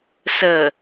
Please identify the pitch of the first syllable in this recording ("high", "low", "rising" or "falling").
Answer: low